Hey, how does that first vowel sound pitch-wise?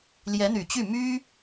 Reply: rising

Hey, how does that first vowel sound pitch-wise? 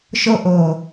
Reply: high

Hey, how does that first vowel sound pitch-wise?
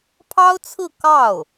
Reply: high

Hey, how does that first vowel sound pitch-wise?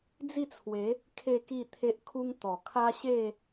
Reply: falling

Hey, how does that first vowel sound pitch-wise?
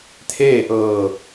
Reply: falling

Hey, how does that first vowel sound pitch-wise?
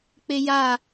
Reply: low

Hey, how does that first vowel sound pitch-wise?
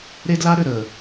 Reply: high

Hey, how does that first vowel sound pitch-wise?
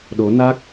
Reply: rising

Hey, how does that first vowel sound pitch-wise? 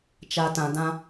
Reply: low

